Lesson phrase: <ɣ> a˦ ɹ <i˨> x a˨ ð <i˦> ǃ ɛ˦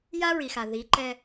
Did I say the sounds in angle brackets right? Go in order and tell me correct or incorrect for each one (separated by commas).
incorrect, correct, incorrect